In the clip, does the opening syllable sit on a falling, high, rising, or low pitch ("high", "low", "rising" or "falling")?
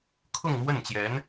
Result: falling